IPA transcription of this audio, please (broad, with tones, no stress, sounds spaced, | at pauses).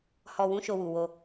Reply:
h ɔ˨ w ũ˨˦ ʃ o˧ w u˨ w o˧